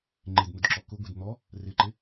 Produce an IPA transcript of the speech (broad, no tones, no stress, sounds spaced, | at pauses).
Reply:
ŋ͡ǃ e d n̪ ʊ d ǁ ɔ k ʊ ɡʷ e d n̪ ɔ | r ɪ ǃ ɪ